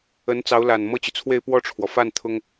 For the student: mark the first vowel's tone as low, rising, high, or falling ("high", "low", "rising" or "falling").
rising